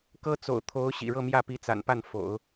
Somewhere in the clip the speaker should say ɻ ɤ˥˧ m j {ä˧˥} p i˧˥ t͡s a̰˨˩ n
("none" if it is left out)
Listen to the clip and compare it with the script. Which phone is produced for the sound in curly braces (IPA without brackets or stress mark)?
ä˥˩